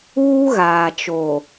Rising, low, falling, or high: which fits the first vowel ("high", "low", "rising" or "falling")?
high